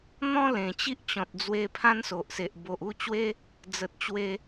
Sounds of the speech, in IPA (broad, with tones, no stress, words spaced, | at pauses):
n̪ɔ̃˦ lẽ˨˩t͡ɕi˦ʔt͡ɕɔ̃˨t̚ d͡zwe˧pʰã˦n so˨ʔse˨ʔ bo˨ʔu˥˧t͡ɕwe˦ | d͡zə˨t̚t͡ɕwe˧